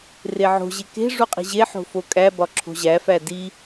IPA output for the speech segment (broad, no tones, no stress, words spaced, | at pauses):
reʕo̤ʑe ke̤ ʐuqʼi̤ʑeħo̤ fokʼæbɒ ǁʰo̤ʑæfæ di